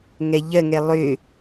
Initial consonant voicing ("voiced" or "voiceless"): voiced